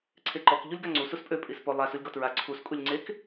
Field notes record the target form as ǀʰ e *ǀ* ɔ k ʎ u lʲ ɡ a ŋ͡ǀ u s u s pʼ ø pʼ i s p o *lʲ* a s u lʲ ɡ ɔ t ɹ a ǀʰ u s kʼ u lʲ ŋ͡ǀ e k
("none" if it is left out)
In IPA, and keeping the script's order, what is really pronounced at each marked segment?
ǃ, lˠ

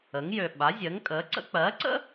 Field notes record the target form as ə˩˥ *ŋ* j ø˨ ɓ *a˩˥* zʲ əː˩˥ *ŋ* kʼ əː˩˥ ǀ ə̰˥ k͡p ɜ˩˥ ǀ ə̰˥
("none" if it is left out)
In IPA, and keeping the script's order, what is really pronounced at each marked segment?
ŋ, a˩˥, ŋ

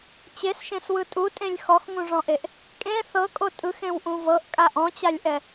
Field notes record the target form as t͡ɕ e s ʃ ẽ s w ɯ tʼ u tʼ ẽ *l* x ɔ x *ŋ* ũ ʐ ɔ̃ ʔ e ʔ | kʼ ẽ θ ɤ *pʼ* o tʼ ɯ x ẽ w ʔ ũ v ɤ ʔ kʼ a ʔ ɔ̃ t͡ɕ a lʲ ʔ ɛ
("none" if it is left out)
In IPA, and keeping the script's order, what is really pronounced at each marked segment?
lʲ, ŋ, kʼ

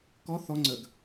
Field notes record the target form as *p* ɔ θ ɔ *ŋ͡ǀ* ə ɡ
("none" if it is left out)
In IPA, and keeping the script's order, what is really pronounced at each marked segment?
k, ŋ͡ǀ

